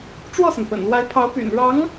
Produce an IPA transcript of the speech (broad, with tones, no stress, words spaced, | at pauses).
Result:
ʈ͡ʂwɔ˥˩sə˩npə̰˨˩nlwa˧˥ɪ̯ pʰɑ˧˥ʊ̯py̰˨˩n ɻɑ˧˥ŋ